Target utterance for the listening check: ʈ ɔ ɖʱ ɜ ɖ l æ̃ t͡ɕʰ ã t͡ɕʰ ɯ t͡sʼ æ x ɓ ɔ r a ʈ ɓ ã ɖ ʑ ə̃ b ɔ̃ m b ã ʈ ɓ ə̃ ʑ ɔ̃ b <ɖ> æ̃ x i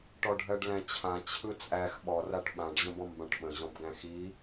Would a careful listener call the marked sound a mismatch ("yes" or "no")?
yes